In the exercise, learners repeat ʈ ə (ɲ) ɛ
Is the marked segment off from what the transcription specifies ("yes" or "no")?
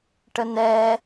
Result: yes